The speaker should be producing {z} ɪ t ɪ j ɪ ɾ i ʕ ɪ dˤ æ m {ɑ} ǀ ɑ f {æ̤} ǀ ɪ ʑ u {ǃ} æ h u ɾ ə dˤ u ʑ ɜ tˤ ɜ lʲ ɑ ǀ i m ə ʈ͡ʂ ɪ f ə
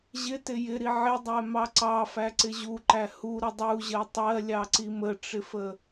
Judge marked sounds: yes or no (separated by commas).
no, yes, no, yes